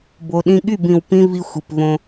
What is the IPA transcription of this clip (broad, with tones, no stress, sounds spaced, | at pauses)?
b o˨ ɗ ĩ˧ ɠ y˦˨ b ĩ˨ w p ĩ˧ v i˧ xʷ i˨ p v õ˧